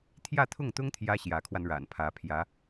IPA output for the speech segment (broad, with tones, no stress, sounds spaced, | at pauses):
t̪ʰ j ä˥˧ t̪ʰ ʊ˥˩ ŋ t̪ ʊ˥ ŋ t̪ʰ j ä˥ ɕ j ä˧˥ kʰ w a˧ n ɻ a̰˨˩ n pʰ ä˧˥ pʰ j ä˧˥